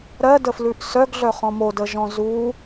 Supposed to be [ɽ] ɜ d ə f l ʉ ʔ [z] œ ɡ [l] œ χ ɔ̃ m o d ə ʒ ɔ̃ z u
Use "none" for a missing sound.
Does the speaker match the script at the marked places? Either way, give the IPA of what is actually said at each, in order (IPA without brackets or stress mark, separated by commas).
ɾ, s, ɮ